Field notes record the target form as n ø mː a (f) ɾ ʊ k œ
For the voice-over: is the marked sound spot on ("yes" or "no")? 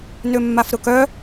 yes